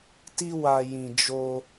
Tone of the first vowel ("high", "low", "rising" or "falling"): high